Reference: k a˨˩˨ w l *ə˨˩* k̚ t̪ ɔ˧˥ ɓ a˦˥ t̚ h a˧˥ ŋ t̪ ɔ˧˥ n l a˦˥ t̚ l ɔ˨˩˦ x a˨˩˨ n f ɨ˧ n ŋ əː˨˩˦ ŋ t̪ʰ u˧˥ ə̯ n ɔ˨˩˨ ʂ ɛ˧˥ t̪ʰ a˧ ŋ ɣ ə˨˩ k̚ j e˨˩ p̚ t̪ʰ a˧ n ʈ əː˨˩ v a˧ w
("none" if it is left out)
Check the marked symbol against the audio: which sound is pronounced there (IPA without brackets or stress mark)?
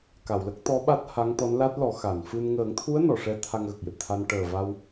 ə˦˥